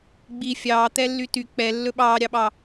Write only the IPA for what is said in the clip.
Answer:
ɡ͡b i fʲ ɑː t̪ ɛ lː y t y k͡p ɛ lː ɵ ɓ ɑː ɾʲ ɑ ɓ ɑ

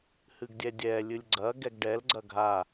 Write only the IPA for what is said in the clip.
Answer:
h ɨ ɡ dʲ ɛ dʲ ɛ lʲ ɨ lʲ ɡ͡ǀ ɐ ɡ ɛ ɡ ɖ ɛ l ɡ͡ǀ ɐ ɡʱ a

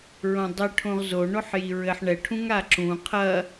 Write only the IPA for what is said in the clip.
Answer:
ɹ õ dˤ i ʈʰ õ ʁ z o ɳ o ħ j i ɹ ɘ ħ ɳ ɛ ʈʰ ũ ŋ a ǁ ũ qʰ ɐ

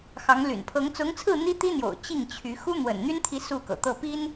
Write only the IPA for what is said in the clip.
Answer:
x ɑ˧˥ ŋ l y̰˨˩ n pʰ ɤ˧˥ ŋ t͡s ʊ˧˥ ŋ t͡sʰ ɹ̩˥˩ n̪ i˥ t̪ i˥ n̪ j o̰˨˩ ʊ̯ t͡ɕ i˥˩ ŋ t͡ɕʰ y˧˥ x u˥ n̪ w ə̰˨˩ n n̪ y˥ n t̪ʰ i˧˥ s u˥˩ k ɤ̰˨˩ t̪ ɤ˥˩ p i˥ n

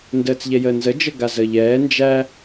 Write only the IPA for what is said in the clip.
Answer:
n d əː t͡s ʎ ɛ j əː n z ə d͡ʒ ə ɡ a z əː ʎ ɛː n d͡ʒ æ

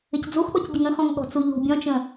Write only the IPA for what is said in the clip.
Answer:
ɪ c d͡z u x ɓ ɔ c ɟ ə ŋ ə̃ x ɔ̃ ŋ ɠ ɔ̤ t͡s u ʎ ṳ bʲ ɔ̃ t͡ʃ ə̃

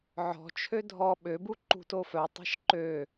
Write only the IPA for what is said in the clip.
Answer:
ʕ ɔ̤ t͡ʃʰ ø dʱ ɔ ɓ ø b u ǃ ṳ t o f œ tˤ ɛ̤ ʃ ǃ ø

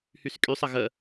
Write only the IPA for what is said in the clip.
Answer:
h y s kʼ y sˤ ə ɣ ə

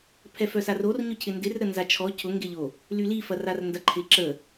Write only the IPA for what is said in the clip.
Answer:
pʰ ɛ f œ s a r o r ɲ ʊ cʰ ɪ n d ɪ r ɾ ə n z a t͡ʃʰ ɔ cʰ ʊ ŋ ɡ e ʎ o | l y l i f ɐ r a r n d ɐ ǃʰ ɪ ǁ ə

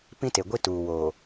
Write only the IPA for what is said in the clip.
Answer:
p ĩ˦ t e˨ ɡʷ i˦ t uː˨ w oː˨

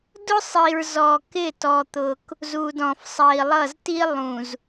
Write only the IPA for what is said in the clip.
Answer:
d ʊ˦ sˤ i˨ ɹ z ɔ˨ k ɪ˦˨ t ɔ˨ t̪ ʊ˨ k | z u˨ d ɔ̃˨ f sˤ ɜ˨ i̯ lˠ ʌ˦˨ z t i˦ lˠ ũ˨ z

